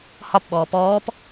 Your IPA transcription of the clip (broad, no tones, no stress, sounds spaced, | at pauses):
h ɒ p ɓ ɔː p ɔː p